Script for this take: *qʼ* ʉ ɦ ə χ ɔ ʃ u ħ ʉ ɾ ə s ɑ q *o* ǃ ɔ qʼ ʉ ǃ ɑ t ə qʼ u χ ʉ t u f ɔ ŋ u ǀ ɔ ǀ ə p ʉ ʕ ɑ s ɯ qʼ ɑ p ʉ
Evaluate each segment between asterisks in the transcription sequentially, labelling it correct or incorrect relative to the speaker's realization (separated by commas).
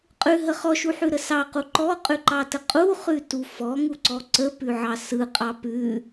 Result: correct, incorrect